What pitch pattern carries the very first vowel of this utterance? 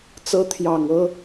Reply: rising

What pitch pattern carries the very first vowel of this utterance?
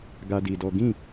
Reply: high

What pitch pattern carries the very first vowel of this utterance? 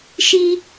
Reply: high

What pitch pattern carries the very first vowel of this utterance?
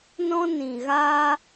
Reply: high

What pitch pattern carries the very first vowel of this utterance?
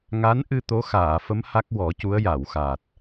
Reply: rising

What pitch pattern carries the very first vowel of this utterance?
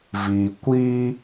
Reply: low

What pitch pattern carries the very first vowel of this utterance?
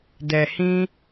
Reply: low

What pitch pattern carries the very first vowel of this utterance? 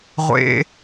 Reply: high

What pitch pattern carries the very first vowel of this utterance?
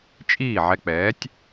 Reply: falling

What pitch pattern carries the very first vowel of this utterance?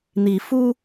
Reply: rising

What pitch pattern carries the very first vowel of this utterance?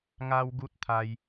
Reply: high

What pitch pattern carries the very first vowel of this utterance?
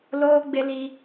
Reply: high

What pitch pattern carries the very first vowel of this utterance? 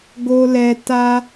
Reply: high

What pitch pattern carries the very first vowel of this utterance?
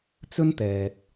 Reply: high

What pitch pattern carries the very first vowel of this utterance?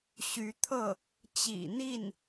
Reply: rising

